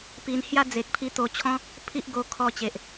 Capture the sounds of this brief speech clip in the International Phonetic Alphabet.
p i˧ n h j a˦ d͡z e˨ k̚ pʰ i˧ t̪ o˧ t͡ɕʰ ɔ̃˦ | pʰ i˦ ʔ ɡ o˧ kʰ ɔ˧ t͡ɕ e˨ ʔ

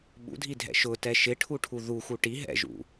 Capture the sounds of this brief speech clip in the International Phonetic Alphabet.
ɓ ṵ dʱ i dʱ ɛ̰ ʃ ʊ t ɛ ʃ ɪ ʈʰ u ʈʰ u ð u x u ʈ i ɦ ɛ̰ ʒ ṵ

